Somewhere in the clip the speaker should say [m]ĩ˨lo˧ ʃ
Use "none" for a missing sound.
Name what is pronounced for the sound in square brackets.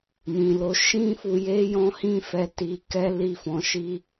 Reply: m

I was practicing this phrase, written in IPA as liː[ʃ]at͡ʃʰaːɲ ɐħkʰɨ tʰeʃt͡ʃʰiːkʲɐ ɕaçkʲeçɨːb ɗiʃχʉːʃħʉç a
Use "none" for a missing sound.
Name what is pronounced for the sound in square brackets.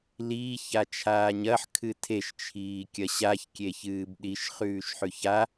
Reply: ç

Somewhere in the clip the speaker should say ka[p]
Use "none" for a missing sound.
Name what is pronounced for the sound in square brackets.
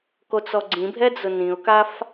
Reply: f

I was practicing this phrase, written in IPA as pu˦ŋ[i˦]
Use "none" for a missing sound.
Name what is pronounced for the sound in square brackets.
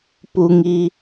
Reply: i˦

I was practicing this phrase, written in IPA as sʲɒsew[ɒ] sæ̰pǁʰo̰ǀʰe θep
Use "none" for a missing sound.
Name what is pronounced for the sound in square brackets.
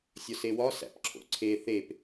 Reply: ɒ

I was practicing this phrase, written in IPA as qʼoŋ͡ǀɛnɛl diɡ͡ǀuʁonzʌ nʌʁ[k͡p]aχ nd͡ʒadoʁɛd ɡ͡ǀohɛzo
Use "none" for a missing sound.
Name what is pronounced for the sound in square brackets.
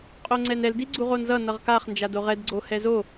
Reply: k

